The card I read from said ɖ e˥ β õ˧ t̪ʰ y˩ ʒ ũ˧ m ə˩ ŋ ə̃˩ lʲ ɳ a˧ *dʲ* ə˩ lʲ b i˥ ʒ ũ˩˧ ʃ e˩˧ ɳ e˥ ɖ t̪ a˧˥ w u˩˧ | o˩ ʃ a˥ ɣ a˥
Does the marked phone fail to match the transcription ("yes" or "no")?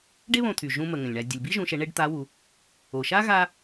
no